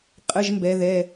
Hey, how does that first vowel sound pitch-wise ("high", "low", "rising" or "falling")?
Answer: high